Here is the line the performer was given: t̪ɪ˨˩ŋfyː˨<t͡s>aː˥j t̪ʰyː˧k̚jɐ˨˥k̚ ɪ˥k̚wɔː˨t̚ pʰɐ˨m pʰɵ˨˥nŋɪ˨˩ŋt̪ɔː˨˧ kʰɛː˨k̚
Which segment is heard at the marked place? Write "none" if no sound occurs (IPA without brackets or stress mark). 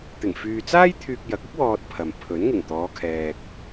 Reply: t͡s